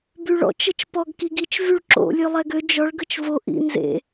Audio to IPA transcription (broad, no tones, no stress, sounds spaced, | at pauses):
b y ɭ ɔ̰ t͡ʃ ə t͡ʃ p ɔ ɡ k i ɡ i t͡ʃ v y ɭ ǁ o̰ lʲ ø lˠ ɛ ɡ ø d͡ʒ ɔ ɭ ɡ ə t͡ʃ v o ʔ ḭ n z ḛ